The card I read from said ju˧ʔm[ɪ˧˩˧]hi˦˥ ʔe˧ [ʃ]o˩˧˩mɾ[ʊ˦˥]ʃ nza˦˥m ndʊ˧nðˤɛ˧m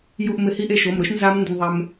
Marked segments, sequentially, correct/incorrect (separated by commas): correct, correct, correct